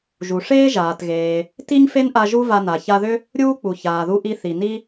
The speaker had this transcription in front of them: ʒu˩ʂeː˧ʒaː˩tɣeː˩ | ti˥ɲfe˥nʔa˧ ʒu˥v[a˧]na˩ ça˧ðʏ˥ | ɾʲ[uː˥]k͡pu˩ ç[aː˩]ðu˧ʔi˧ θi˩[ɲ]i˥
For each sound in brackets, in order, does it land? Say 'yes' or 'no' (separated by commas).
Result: yes, yes, yes, no